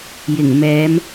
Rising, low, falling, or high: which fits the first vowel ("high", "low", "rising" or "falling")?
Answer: low